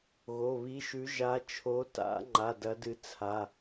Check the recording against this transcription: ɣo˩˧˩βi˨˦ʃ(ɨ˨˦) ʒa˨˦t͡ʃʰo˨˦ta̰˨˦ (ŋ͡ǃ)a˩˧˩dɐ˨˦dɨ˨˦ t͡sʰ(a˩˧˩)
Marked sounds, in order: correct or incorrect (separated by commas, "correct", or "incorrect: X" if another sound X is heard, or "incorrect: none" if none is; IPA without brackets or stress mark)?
incorrect: ʉ˨˦, correct, correct